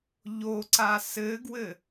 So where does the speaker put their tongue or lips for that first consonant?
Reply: palate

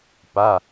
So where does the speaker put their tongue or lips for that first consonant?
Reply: lips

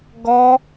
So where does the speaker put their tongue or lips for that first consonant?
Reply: velum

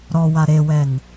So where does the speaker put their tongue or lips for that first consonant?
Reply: tongue tip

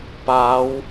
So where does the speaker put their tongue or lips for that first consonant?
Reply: lips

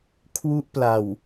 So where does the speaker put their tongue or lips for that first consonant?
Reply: velum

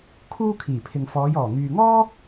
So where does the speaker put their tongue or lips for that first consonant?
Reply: velum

